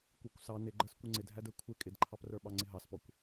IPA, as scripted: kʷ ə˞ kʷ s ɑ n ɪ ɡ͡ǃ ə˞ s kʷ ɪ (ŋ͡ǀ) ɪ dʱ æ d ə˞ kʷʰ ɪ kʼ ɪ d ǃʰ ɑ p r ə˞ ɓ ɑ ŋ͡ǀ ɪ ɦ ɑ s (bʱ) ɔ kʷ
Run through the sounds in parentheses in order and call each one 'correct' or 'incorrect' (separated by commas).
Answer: correct, incorrect